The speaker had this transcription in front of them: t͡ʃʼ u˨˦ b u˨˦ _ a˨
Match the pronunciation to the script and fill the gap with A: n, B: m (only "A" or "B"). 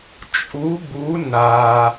A